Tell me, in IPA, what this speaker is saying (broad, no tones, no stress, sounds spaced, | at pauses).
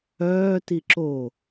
œː t i ǁ o